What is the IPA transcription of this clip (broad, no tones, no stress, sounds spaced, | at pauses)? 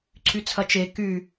ǀʰ y t͡sʰ ɐ t͡ʃ e k y